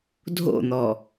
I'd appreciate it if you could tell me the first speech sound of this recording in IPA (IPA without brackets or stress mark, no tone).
dʱ